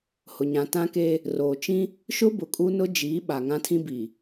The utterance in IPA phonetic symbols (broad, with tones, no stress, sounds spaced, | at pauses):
h ʊ˨ ɲ ã˨ t ã˦ k eː˦ | r oː˨ t͡ʃ ĩ˦ | ʃ ʊ˦ b ʊ˨ kʼ u˦ n ʊ˦ d͡ʒ iː˨˦ ɓ a˨ ŋ ã˦ tʰ ĩ˦ b iː˨